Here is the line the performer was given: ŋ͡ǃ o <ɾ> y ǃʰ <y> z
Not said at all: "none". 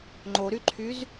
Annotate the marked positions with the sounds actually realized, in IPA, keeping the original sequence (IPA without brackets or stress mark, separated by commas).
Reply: ɾ, y